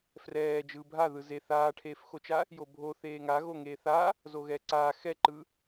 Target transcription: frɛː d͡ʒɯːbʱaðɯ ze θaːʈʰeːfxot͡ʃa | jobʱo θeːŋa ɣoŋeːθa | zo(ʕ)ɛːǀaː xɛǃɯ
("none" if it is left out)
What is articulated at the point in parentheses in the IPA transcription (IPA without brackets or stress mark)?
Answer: ɣ